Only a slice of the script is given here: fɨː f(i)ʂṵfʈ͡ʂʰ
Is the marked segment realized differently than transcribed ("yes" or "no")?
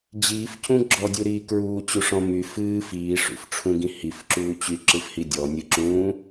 yes